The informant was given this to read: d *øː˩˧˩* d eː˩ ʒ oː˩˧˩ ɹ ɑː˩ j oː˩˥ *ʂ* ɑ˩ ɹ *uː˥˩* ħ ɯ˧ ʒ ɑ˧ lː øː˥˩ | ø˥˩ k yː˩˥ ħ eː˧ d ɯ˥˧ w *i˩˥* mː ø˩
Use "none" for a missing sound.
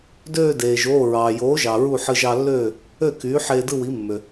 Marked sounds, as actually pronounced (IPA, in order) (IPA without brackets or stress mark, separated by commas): øː˥˧, ʒ, u˥˩, i˩˥